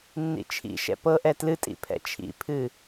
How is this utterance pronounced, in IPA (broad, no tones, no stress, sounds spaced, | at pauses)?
nː ḭ t͡ʃʰ ḭ ʃ ɛ̰ p ɤ ʔ ɛ t l ɨ tʼ ḭ pʰ ɛ̰ t͡ʃʰ ḭ pʰ ɨ